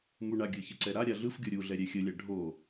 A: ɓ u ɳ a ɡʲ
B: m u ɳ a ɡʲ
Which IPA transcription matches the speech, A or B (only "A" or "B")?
B